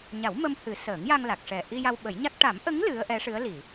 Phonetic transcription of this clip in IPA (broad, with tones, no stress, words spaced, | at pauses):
ɲa˨˩˦wmə˧m hɨ˨˩˦ səː˨˩˦ŋja˧ŋla˨˩k̚ʂɛ˨˩ ʔi˧ja˧w ɓə˨˩˦jɲa˦˥k̚ ʈa˨˩˦mʔə˧˥ŋ lɨ˧˥ə̯ʔɛ˧˥ ʂɨ˧˥ə̯li˨˩˨